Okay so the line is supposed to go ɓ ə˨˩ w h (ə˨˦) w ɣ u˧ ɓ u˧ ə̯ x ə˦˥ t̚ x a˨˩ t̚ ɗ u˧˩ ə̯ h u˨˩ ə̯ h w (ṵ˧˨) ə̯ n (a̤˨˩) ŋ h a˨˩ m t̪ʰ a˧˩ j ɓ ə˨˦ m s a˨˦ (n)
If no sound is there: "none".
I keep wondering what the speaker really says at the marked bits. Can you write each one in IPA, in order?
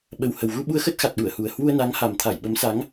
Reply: ə˨˩, u˧, a˨˦, ŋ

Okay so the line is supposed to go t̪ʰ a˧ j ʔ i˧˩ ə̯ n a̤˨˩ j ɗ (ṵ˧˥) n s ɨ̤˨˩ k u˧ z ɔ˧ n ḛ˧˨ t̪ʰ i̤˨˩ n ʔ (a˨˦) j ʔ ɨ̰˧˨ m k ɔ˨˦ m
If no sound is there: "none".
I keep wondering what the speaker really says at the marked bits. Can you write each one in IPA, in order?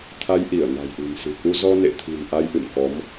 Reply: ṳ˨˩, a˧

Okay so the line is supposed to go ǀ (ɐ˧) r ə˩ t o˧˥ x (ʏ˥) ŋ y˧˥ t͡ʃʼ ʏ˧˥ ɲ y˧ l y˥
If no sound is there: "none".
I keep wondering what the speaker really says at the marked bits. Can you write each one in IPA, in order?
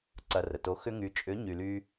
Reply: ɐ˧, ʏ˥

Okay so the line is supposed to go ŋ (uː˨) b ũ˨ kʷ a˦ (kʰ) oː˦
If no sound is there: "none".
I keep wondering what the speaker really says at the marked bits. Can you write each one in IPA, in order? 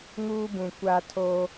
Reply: uː˦, tʰ

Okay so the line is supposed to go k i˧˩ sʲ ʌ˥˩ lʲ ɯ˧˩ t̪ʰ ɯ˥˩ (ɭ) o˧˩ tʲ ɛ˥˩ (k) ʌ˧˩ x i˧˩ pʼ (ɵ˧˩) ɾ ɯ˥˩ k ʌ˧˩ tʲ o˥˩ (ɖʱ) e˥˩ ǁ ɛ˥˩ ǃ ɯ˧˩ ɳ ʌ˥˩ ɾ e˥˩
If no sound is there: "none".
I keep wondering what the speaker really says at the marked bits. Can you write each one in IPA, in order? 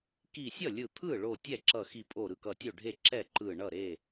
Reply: ɭ, ǁ, o˧˩, ɖʱ

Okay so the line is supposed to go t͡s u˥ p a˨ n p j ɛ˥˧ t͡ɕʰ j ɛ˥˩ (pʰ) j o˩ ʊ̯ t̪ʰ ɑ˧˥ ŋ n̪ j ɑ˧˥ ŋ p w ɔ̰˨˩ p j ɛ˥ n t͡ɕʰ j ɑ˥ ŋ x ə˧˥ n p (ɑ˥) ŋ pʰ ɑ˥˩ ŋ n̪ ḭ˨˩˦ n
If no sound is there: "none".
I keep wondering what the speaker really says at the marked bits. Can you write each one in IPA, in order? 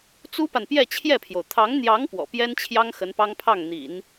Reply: pʰ, ɑ˥

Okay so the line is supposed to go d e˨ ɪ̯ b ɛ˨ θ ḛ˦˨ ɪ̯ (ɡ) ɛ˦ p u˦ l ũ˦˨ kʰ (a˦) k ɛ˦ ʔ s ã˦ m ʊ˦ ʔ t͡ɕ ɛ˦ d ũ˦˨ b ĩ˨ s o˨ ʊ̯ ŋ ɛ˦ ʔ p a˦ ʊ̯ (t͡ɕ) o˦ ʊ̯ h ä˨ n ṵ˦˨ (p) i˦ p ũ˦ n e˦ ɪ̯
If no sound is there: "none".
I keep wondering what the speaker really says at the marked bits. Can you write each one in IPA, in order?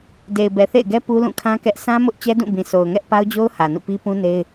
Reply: ɡ, ã˦, d͡ʑ, p

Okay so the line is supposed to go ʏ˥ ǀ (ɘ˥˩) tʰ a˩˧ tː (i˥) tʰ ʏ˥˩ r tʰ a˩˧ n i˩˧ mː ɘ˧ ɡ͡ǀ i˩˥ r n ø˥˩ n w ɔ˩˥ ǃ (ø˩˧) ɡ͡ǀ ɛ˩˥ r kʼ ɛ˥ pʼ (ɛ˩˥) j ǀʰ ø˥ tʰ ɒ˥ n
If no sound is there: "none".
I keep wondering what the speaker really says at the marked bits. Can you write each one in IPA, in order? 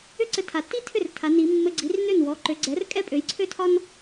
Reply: ɘ˧, i˥, ø˩˧, ø˩˥

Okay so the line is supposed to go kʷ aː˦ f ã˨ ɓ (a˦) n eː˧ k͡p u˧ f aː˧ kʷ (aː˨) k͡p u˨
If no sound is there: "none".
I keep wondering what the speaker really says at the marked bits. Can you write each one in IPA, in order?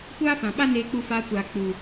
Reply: a˦, aː˨

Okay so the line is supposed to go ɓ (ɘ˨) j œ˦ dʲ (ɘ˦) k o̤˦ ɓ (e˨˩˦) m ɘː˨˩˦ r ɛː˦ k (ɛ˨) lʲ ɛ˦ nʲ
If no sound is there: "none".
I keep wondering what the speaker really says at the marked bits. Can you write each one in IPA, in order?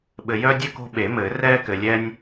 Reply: ɘ˨, ɘ˦, e˨˩˦, ɘ˨

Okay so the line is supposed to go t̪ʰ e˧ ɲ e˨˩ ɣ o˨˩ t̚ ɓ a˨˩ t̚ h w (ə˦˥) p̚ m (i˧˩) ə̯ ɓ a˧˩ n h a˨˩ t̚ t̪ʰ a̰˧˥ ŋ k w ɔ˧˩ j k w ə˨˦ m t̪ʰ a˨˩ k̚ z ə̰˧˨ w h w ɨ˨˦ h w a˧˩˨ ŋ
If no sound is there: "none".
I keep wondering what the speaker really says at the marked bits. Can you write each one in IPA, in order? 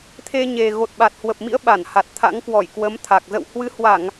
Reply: ə˨˩, ḭ˧˥

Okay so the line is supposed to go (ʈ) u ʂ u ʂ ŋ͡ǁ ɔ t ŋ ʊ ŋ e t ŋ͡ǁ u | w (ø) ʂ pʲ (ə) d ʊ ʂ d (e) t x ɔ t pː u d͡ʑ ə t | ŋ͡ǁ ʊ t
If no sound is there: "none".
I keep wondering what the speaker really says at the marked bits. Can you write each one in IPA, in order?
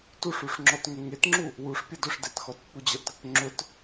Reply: t, u, ə, e

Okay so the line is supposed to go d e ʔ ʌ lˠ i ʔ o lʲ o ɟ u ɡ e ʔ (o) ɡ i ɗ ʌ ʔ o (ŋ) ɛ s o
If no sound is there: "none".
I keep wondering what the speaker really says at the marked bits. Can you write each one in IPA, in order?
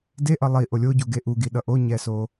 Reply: u, ɲ

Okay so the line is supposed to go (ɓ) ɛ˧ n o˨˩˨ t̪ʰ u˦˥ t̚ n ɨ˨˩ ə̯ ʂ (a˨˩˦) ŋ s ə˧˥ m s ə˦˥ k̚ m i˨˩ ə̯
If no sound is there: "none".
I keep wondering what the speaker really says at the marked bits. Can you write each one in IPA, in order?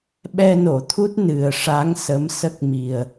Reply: ɓ, a˧˥

